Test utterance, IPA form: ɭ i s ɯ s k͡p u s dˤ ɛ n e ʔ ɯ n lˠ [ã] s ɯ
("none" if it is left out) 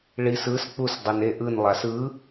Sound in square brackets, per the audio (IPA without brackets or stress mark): a